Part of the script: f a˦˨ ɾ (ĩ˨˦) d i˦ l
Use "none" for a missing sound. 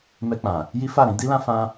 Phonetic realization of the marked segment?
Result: ĩ˨˦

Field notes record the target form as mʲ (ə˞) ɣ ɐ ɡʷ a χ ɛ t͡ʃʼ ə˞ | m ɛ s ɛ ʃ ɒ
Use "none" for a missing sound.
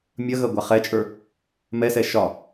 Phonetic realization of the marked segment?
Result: ɐ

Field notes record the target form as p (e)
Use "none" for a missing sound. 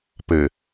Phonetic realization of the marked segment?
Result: ɘ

